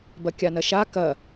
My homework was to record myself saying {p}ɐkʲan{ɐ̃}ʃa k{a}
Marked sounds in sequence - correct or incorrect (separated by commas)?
incorrect, incorrect, incorrect